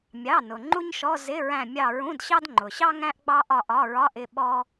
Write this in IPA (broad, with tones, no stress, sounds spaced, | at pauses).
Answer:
mʲ ɑ˩˧˩ n ʊ˩ ŋ͡ǃ u˥ ɲ ʃ ɔ˧˥˧ z ɪ˧˥˧ ɹ æ̃˦˨ mʲ ɑ˦˨ ɹ ũ˧˥˧ d ɕ ɑ˥ d ŋ͡ǃ ʊ˩ ɕ ɑ˥ ŋ æ̃˥ ʔ ɡ͡b ɑ˥ ʔ ɒ˦˨ ʔ ɒ˧˥˧ ɹ ɒ˧˥˧ ʔ ɪ˩˧˩ ɓ ɔ˥